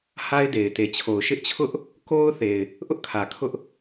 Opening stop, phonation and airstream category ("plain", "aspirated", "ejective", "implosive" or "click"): plain